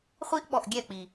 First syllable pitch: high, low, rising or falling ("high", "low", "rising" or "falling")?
high